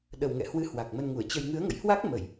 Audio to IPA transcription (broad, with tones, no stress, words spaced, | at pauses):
ɗə˨˩wŋɛ̰˧˨hwɨ˨˦ hwa˨˩k̚mə˧nŋu˧˩ə̯t͡ɕə˧j ŋɨ˨˦ə̯ŋə̰˧˨jhwa˦˥k̚ mə˧˩˨j